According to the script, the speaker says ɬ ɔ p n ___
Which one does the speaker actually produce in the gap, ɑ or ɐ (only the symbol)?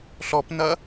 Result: ɐ